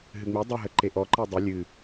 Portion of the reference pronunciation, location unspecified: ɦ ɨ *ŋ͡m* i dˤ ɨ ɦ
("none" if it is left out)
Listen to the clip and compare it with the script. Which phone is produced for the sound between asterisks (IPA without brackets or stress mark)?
ŋ͡m